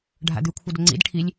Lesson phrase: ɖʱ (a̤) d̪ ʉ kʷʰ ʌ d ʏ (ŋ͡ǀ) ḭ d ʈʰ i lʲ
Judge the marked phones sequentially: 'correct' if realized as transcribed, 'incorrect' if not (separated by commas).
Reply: incorrect, correct